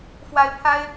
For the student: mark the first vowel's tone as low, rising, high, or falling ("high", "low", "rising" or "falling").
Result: high